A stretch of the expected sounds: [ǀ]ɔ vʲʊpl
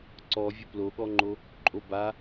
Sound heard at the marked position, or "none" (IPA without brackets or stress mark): ǀ